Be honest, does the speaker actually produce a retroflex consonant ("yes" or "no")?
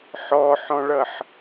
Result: yes